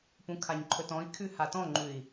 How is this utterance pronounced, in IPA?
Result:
p ũ kʰ a ɲ ǃʰ ɵ t ɔ̃ i̯ kʰ ʉ h a t ɔ̃ ŋ͡ǃ ʉ i̯

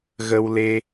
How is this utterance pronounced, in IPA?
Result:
ɣ ə˧ w l e˧

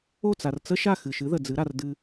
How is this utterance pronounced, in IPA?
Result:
o˥˩ t͡s a˩ r t͡s ə˥ ʃ a˥˩ x ɨ˩ ʃ ɨ˩˥ ð ə˩ d͡z ɨ˩˥ ɾ a˩ r d ɨ˧

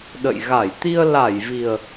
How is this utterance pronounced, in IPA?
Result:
ɗ ə̰˧˨ j ɣ a˧˩ j t̪ i˧ ə̯ l a˧˩ j v i˨˩ ə̯

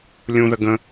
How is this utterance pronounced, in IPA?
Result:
lʲ ũ ð ə ɡ ə̃

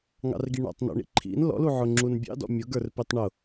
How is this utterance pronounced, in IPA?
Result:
ŋ ɑ̰ r ɡ i ɳ ɔ̰ tˤ n ɔ̰ ɳ ḭ ǃʰ ḭ n l ɔ̰ l u ʕ ʊ ŋ͡ǁ u n bʲ ɑ̰ d ɔ̰ mʲ ʊ ɡ ə˞ r p i tˤ ɳ ʊ

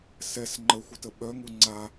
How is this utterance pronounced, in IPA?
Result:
s ɛ s ŋ͡ǃ ə xʷ ə t ə ɓ œ ŋ u ŋ͡ǀ a

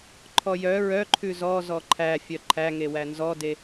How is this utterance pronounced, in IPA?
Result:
ǃʰ ɔ j œ ɹ œ ǃʰ ʉ z ɔ z ɔ ǃʰ æ fʲ œ ǃʰ æ ŋ e w æ n z ɔ d e

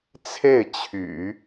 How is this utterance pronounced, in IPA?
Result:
t͡sʰ e˥˩ ɪ̯ t͡ɕʰ y̰˨˩˦

